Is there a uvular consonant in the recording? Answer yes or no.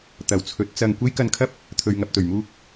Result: no